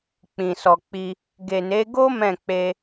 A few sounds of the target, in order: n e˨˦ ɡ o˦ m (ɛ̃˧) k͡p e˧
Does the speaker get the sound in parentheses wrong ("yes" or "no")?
yes